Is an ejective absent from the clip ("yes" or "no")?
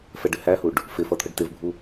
yes